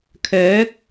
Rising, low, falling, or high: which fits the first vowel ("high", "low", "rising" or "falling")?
rising